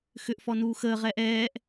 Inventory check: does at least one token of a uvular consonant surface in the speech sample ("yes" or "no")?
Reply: yes